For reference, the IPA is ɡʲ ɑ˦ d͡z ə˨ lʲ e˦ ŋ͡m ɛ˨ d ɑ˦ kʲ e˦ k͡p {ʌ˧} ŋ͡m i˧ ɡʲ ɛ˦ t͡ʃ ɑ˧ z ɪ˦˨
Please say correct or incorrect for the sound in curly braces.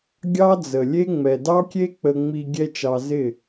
incorrect